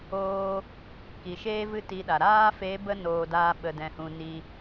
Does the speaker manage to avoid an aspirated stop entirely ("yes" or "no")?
yes